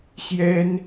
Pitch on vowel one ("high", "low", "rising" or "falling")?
high